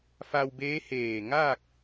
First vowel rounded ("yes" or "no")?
no